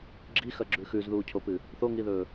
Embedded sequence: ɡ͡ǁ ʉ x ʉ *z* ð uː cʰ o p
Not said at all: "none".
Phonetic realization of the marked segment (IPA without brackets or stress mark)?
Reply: z